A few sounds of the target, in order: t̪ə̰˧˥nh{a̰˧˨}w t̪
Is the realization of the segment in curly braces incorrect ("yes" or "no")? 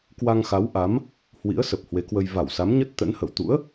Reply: yes